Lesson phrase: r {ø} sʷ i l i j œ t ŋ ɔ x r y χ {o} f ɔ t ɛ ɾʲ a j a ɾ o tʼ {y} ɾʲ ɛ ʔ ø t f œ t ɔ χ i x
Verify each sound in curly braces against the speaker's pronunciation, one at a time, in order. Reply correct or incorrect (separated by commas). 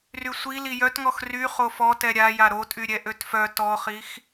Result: incorrect, correct, correct